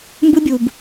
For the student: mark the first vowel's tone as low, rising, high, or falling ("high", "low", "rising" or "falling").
high